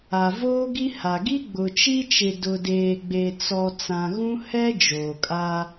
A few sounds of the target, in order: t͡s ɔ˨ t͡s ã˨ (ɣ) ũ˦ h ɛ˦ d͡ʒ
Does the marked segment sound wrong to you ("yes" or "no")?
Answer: no